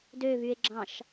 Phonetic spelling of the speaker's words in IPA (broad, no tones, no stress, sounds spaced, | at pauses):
d ø v y e̯ ɡ͡ǁ ɑ̃ ʃ